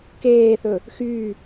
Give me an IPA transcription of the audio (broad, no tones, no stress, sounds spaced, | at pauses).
k eː θ ɵ | x yː